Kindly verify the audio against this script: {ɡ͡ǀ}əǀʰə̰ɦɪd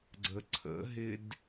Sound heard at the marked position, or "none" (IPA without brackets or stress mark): ɡ͡ǀ